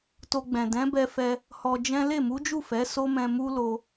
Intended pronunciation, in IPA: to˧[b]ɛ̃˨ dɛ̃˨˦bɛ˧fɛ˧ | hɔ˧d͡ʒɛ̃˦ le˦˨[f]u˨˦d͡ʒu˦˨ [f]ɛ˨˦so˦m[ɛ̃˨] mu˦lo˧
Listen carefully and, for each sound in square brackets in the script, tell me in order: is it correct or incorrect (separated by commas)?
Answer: incorrect, incorrect, correct, incorrect